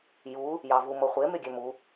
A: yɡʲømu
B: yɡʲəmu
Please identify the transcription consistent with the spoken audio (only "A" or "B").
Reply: A